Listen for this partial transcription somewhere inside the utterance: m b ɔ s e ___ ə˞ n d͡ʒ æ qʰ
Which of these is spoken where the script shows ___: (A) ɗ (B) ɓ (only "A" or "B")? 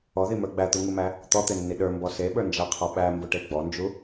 B